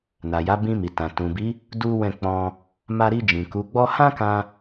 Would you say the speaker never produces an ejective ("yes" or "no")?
yes